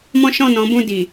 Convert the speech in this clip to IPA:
m ɔ̃˦ ʃ ɔ̃˦˨ n ɔ̃˨˦ b ũ˦˨ d i˨

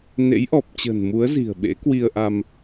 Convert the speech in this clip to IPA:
n ḛ˧˥ j ʔ ɔ˨˩ p̚ t͡ɕ ə̤ː˨˩ n m u˨˦ ə̯ z i̤˨˩ ə̯ ɓ ḛ˧˥ k w i˧ ə̯ ʔ a˧ m

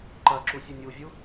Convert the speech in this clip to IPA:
ǃ ɐ ǁ u sʲ ɘ nʲ u vʲ u

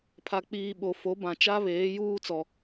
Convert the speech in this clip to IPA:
pʰ a˨ k͡p iː˨ ɓ o˨ f o˨˦ b ã˨ t͡ʃ a˦ β eː˨˦ j uː˦ t͡s ɔ˦

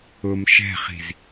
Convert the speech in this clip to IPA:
ʊ m ʃ ɛ̤ χ i̤ z

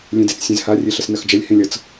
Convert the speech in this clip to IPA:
lʲ ẽ d e t͡s sʲ ẽ z h a rʲ e ɬ ə s n ɐ x d͡ʒ ɐ lʲ h ẽ lʲ ʌ t͡s

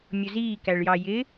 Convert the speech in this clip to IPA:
mʲ ʊ z iː k æ ɭ j ɑ j ɪ

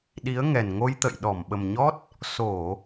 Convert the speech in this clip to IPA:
ɗ i˨˦ ə̯ ŋ ɛ˨˩ n ŋ o˧ j t̪ ə̰˧˨ j ɗ ɔ˧˩ m ɓ ə˨˩ m ɲ ɔ˦˥ t̚ | s o˧˩˨

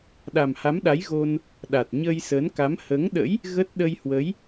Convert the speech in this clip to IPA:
ɗ a˨˩ m h a˨˦ m ɗ a˨˦ j ɣ o˧ n | ɗ a˨˩ t̚ ɲ əː˧ j s əː˨˦ n k a˨˦ m h əː˨˦ ŋ ɗ ə̰˧˥ j | ɣ ə˦˥ t̚ ɗ ə˧ j h w ə˨˦ j

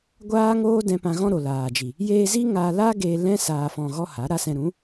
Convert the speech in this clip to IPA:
ɡʷ aː˦ ŋ oː˦ d ɛ̃˧ p ã˧ ɣ ɔ̃˦ ɾ o˨ l aː˨ d͡ʒ i˨ | j eː˧ z i˦ ŋ a˧ l a˦ ɡ eː˧ l ɛ̃˦ s aː˧ f ɔ̃˧ ɣ ɔ˦ h a˨˦ ɾ a˧ s ɛ̃˧ ɾ ũ˨˦

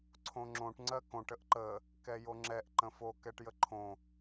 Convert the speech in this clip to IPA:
ǀʰ õ ŋ͡ǁ õ ʈ ŋ͡ǀ ɜ k õ ʈ ə ʔ ǃ ə | k ɛ j o ŋ͡ǁ ɛ ʔ ǃ ə̃ f o k ɛ ʈ j ə ǃʰ õ

